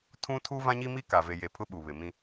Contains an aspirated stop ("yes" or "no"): yes